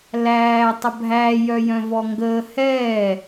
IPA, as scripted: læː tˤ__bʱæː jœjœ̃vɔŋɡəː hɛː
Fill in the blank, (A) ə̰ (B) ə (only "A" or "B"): B